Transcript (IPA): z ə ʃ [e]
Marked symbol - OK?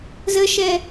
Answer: no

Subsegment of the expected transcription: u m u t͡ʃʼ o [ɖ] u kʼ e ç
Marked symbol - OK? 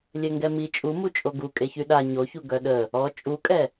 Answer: no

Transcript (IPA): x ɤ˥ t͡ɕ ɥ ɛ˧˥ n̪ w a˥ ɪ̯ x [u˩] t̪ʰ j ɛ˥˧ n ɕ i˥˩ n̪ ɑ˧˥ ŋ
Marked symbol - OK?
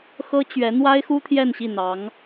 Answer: no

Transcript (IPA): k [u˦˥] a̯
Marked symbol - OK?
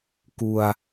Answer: no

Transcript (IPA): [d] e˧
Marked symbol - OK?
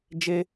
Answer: no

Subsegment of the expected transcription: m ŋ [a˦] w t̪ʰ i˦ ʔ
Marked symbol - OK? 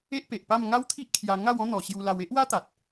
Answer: yes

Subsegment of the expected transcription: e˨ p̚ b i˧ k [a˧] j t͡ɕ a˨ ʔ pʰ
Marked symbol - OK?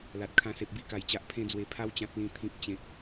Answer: no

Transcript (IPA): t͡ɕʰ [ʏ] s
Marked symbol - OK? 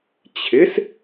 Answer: no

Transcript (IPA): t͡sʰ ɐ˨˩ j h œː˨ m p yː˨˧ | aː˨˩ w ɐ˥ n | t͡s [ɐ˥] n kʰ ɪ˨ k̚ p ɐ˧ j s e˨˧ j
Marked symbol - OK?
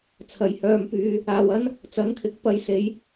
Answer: no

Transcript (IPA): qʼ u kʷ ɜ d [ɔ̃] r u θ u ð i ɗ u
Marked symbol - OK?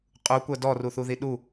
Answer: no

